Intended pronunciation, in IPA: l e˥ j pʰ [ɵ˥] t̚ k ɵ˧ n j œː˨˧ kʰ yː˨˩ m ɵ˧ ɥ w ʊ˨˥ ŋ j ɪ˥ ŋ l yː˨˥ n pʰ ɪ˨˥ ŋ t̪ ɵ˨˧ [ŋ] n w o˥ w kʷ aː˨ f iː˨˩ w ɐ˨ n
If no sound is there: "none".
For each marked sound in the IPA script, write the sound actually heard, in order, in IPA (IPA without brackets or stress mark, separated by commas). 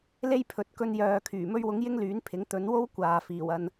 ɵ˨, none